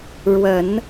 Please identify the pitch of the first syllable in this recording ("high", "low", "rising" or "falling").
low